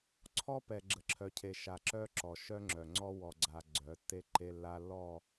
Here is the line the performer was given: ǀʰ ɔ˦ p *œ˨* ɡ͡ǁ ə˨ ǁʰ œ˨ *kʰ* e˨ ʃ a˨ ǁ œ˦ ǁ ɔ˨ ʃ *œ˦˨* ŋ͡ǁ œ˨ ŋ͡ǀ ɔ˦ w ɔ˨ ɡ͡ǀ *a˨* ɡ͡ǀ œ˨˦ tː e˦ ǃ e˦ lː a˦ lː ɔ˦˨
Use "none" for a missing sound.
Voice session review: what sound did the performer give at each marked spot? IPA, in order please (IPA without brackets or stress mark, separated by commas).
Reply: ɛ˨, cʰ, œ˦, a˨